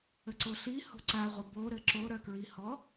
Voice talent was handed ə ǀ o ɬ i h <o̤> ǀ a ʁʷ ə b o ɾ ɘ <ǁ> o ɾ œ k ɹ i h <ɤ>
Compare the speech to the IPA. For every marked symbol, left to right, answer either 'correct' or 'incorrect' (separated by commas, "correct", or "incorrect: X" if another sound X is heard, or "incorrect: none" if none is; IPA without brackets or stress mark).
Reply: correct, correct, incorrect: ɔ